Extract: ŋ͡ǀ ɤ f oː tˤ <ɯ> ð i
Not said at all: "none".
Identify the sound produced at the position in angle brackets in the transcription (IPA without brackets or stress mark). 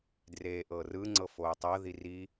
ɤ